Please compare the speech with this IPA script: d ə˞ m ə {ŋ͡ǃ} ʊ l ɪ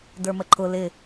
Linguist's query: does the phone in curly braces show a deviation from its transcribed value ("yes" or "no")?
yes